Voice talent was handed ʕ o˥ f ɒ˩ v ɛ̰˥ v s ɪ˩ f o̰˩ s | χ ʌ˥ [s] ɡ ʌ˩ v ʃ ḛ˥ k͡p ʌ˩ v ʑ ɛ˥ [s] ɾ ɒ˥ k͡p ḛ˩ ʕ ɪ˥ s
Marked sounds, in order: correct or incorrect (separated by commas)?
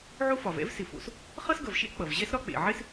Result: correct, correct